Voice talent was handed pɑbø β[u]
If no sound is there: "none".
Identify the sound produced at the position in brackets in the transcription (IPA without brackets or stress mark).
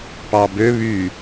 y